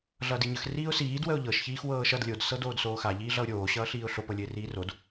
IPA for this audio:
ɮ ʌː d i ɲ ə x r iː ʊ̯ s iː d w ə ʊ̯ ʎ ɤ ʃ ç iː x w ɤː ʃ ʌ d lʲ o d s ɤ d oː d s oː x a ʎ iː ɮ ʌ ʊ̯ ɾʲ oː ɕ ʌː ɬ iː ʊ̯ ɬ o p ɤ lʲ ɘ ɪ̯ r iː r o d

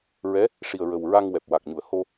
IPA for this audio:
ɹ ɛ˧˥ | ʂ i˨˩ ə̯ ɹ ə˨˩ w ɹ a˧ ŋ w ɛ˨˩ p̚ w a˨˩ k̚ ɲ u˨˩˨ ə̯ h o˧

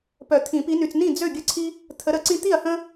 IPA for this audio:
p œ˨˩˦ t̪ʰ ĩ˨˩˦ p i˨˦ n y˨ t͡s n ĩ˥˩ d͡z ø˥˩ ɡʲ ə˦ ǀʰ i˦ | t̪ʰ ə˨˦ ɾ ə˨˩˦ ǀ ĩ˦ t̪ i˥˩ ɐ̯ h ə̃˦

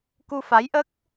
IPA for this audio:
k u˧ f a˧˥ j ʔ ə˦˥ k̚

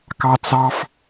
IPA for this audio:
k ɑ t͡s ɑ f

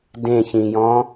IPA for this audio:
d ẽ ç ĩ j ɔ̃

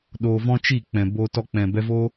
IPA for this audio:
ɗ oː˧ v ɔ̃˦ t͡ʃ i˦˨ k͡p ɛ̃˨ b oː˧ t ɔ˧ k͡p ɛ̃˨ b ɛ˧ v oː˦

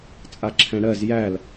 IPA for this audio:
t͡sʼ a ǁʰ ɛ̃ ɽ ɜ z j æ l

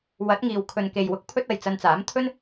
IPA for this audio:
w ɐ˨˥ t̚ ŋ iː˨ w kʰ ɵ˨ n k e˨ j w ʊ˨˥ k̚ pʰ ɵ˥ t̚ ɐ˨ j t͡s ɐ˧ n t͡s aː˨˥ m t̪ʰ ɵ˥ n

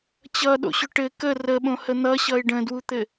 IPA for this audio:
t͡ɕ ʌ ɗ o̰ ɕ ʏ ʈ ɘ k ə r ə ɓ õ h ə n̪ ʌ ɕ ʌ ɪ̯ ɖ ə̃ d w u t̪ ɘ

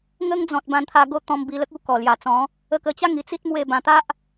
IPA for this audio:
ŋ ə˦ ŋ d͡z ɔ̃˨ t̚ b ã˧ n t̪ʰ a˧ ɡ o˥˧ t̪ ɔ̃˧ m b i˧ l ə˦ k̚ u˦ k ɔ˨˩ l j a˨˩ t͡s ɔ̃˨˦ | ə˧ k ə˧ t͡ɕ a˥˧ ŋ i˨˩ t͡s i˦ t̚ m w e˥˧ b ã˧ t̪ a˦ ʔ

